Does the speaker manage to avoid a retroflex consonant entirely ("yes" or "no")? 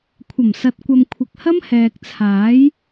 yes